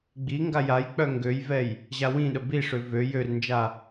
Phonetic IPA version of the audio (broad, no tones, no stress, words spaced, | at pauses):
ɡ͡biŋɡa jaj k͡pœŋɡøjvɛj | ʑawĩɗə biʂø vø jørnd͡ʒa